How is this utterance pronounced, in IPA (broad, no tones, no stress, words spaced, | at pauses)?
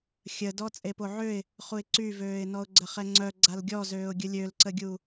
xʲədɔ t͡sʼepoʕøɪ̯ | χuɪ̯ǀyvøːɪ̯ nɔʊ̯ɡ͡ǀəχɛŋ͡ǀœ ɡ͡ǀalɡʲɔzøːʊ̯ ɡʲəlʲølǀəɡʲu